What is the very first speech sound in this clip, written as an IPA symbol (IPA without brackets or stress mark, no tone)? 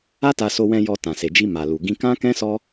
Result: a